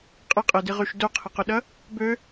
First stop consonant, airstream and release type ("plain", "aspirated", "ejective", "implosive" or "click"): ejective